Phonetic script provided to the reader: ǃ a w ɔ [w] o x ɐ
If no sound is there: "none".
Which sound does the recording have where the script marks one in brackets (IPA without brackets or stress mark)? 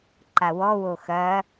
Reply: w